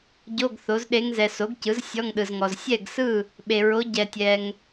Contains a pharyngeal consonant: no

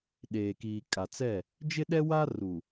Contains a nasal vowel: no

